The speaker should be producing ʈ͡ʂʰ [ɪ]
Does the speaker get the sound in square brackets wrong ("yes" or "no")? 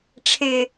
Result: no